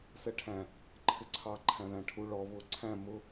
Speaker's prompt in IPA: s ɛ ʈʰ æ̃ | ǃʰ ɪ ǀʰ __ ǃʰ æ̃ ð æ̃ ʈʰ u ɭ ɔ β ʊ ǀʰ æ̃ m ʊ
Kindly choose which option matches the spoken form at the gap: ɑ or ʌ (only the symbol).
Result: ɑ